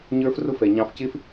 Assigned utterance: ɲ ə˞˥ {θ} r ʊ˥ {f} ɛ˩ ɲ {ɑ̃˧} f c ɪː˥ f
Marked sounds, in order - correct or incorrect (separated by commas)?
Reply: incorrect, correct, correct